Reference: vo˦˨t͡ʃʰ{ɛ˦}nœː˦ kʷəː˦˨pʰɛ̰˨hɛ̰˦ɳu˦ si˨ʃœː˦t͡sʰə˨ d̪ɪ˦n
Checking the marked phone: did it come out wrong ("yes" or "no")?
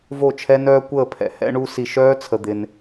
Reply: no